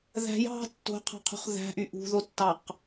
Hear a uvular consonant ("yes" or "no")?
yes